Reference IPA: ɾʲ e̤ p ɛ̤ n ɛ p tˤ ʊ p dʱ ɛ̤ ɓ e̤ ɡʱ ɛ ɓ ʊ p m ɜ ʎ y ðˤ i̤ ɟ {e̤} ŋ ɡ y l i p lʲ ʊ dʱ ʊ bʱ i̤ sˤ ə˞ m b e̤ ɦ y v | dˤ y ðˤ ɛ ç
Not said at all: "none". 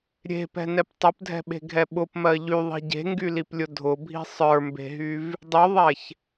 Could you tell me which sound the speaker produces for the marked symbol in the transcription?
e̤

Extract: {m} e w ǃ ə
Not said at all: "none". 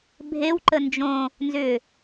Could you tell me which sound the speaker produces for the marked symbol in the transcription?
bʱ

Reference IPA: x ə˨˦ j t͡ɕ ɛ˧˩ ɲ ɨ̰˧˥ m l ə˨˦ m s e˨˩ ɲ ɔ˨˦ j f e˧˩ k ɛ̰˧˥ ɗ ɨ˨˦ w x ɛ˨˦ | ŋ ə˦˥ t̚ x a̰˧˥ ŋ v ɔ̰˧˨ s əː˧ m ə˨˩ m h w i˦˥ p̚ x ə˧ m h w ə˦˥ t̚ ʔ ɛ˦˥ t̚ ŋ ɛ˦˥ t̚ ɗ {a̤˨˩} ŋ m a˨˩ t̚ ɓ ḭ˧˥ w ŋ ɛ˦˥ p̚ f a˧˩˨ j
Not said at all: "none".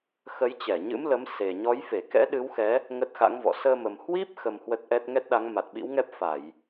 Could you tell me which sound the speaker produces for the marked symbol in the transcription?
a˨˦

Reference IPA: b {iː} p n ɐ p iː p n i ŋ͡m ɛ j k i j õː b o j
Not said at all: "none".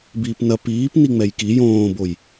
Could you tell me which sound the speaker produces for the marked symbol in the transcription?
iː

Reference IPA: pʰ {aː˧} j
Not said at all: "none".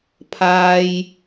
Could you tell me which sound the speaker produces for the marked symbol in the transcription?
aː˧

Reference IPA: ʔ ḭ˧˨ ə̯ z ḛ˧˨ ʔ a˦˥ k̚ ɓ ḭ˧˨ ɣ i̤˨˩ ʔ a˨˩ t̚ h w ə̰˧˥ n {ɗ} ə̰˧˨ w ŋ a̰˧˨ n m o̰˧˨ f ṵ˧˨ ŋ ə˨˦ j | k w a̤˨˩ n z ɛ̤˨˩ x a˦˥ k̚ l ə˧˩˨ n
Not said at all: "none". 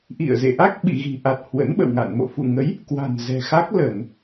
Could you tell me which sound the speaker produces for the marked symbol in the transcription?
ɓ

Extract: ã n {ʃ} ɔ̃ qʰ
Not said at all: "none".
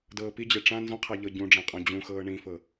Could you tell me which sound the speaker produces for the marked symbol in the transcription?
z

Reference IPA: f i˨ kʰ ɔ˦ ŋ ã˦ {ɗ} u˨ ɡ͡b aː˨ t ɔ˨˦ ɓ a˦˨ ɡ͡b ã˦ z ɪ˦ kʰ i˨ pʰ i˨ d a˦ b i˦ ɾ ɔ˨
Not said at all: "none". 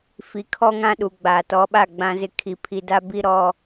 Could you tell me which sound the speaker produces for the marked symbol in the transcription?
ɗ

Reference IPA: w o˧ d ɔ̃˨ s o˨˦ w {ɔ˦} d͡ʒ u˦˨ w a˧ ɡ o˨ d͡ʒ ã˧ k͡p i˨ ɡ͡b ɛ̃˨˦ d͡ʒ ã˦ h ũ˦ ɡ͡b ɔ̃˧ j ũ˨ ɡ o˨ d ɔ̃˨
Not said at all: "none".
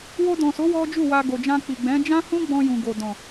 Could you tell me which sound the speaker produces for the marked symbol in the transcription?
ɔ˦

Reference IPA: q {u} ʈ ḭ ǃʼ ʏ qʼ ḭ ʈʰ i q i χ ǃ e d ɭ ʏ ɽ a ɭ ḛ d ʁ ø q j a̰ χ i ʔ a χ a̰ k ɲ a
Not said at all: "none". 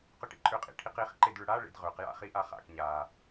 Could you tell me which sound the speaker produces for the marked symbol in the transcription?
ʏ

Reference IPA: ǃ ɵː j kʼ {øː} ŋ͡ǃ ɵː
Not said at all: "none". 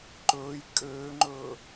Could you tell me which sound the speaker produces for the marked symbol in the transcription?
øː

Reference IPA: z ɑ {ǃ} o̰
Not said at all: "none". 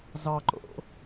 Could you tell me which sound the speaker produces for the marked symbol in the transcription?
ǃ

